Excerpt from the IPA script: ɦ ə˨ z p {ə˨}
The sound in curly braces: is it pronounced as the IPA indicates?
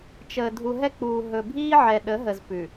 no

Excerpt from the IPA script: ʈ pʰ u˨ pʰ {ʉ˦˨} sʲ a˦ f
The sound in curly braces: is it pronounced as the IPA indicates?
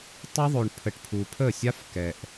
no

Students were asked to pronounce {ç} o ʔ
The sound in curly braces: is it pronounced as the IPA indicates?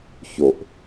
yes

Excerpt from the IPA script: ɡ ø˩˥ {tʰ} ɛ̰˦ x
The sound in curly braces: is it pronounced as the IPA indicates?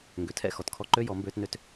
yes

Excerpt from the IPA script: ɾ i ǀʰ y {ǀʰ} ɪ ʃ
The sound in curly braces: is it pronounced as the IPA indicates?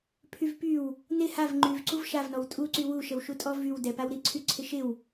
yes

